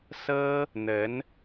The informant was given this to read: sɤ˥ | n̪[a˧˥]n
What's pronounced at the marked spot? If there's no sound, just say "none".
ə˧˥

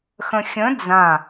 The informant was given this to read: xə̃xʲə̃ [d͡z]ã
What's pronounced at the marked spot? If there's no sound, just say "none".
d͡z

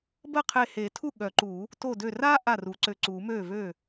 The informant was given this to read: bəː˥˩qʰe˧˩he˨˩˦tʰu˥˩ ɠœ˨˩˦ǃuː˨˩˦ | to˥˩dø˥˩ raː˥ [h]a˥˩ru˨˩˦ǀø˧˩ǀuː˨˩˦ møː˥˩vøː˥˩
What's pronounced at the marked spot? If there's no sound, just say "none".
ʔ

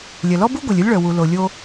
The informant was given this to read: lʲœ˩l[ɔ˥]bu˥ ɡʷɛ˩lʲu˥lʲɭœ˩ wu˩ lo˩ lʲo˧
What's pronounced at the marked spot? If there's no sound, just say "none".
ɔ˥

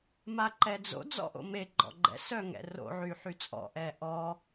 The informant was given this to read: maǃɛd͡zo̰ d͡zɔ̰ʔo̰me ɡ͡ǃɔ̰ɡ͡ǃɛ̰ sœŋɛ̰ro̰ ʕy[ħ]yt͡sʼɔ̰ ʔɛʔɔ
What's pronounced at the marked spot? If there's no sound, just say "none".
ħ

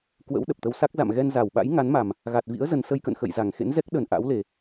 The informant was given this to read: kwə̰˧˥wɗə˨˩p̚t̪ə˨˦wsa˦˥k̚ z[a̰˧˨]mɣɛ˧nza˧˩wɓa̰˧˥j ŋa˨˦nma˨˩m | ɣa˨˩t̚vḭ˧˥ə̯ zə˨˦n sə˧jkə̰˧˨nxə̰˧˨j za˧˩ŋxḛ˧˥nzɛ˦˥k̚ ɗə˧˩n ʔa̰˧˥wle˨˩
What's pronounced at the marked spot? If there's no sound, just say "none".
a̰˧˨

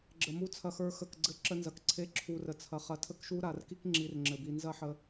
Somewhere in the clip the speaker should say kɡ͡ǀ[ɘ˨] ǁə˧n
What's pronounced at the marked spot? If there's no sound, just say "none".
ɘ˦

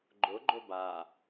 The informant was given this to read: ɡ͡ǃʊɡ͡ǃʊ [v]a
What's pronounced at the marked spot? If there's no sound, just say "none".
b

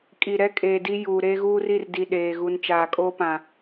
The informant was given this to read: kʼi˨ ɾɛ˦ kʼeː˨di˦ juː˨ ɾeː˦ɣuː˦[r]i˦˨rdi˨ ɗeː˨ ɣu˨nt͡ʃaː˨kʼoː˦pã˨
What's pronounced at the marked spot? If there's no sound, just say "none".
r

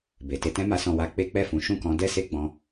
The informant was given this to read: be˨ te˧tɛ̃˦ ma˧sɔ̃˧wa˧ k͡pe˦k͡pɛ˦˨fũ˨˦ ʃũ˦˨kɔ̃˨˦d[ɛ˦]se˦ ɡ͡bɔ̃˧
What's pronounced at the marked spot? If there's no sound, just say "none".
ɛ˦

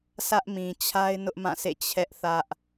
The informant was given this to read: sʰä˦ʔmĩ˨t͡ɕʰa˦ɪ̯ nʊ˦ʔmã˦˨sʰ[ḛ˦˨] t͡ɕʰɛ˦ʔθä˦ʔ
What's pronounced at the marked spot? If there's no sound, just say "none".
ḛ˦˨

